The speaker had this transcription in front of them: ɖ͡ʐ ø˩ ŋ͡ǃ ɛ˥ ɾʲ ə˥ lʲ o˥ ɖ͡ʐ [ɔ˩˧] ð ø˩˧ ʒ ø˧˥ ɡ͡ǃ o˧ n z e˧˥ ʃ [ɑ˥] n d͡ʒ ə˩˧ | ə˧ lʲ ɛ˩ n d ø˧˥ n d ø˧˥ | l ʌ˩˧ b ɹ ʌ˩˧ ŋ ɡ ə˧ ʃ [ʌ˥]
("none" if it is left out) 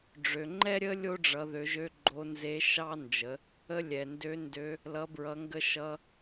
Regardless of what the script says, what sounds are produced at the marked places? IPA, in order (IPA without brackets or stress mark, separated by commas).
ʌ˩˧, ɑ˥, ʌ˧